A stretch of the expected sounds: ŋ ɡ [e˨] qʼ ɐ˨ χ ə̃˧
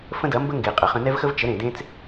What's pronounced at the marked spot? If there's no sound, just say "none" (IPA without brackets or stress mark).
e˨